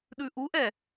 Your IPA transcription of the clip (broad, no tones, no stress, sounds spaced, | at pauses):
ɗ ʉ ʔ u ʔ ɛ